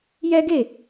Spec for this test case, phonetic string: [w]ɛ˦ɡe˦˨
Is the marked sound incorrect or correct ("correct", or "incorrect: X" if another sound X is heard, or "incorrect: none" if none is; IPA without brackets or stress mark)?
incorrect: j